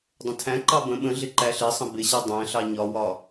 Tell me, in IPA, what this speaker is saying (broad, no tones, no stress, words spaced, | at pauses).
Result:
dˤə̃tʰæ̃ǃɑ bə̃ ɓə̃ɮɪ ǃæɬɪsˤə̃ bɪɕɛ dˤæ̃ɬɑ ɲɒwɒ